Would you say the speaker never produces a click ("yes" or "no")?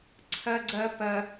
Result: no